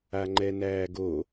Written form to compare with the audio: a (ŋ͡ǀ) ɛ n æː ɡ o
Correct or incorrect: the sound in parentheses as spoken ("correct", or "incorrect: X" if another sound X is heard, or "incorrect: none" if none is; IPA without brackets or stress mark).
incorrect: ŋ͡ǃ